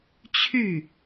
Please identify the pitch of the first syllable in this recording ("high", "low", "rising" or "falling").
falling